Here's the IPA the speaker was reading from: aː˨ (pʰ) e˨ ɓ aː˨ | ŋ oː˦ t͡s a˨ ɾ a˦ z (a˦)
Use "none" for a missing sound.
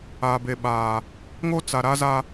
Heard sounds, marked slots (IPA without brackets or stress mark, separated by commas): b, a˦